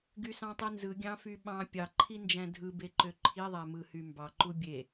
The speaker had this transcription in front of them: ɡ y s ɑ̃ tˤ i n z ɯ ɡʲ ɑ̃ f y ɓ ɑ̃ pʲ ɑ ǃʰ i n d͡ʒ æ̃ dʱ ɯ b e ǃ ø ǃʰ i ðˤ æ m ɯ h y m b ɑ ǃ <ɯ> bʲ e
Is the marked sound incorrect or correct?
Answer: incorrect